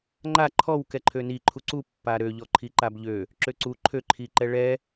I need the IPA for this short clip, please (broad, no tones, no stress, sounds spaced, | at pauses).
ŋ͡ǃ a ǃʰ ɔ w k ɛ ǃʰ ø n i ǃʰ u ǀ u pː a ɾ ø ʎ ɔ ǃʰ i ǃ a b ʎ ø | ǁ ø ǀ u ǃʰ ø ǃʰ i ǃ ɛ ɭ ɛ